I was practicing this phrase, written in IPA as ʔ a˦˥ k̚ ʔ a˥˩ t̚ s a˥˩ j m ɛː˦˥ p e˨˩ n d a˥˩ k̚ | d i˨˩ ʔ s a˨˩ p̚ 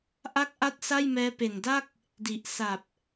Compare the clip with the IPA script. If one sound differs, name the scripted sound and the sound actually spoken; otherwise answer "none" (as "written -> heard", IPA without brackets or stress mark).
none